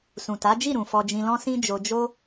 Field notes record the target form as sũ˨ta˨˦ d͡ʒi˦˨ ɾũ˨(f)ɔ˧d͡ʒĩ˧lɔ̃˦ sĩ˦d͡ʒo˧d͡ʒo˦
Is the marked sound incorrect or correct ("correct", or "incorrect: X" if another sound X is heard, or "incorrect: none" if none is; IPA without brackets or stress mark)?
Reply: correct